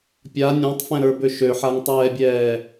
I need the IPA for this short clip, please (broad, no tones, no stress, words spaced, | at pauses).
pʲa nʲɔ̃tˤfɛ̃ɾə˞bø ʃøħaŋtˤɛːbʲɛː